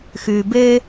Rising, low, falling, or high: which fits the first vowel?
low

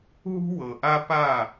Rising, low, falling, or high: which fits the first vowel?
high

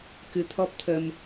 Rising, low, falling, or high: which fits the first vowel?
rising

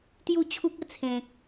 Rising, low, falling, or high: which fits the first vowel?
falling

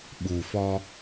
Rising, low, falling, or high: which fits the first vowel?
low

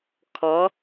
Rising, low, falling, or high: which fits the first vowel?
rising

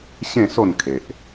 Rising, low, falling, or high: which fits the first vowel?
falling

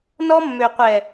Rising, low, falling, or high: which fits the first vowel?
high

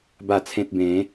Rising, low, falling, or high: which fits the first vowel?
low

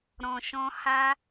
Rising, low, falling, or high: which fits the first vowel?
low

